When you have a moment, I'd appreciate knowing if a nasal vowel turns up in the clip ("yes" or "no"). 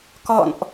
no